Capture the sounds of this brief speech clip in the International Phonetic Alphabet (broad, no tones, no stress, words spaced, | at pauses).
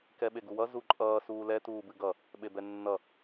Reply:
kɛɓeɡuwʌ zuǃʼʌː suːlɛ tuːbɨɡʌ | ɓebɛnːʌ